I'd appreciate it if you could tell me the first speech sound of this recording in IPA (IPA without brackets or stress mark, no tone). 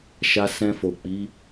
ʃ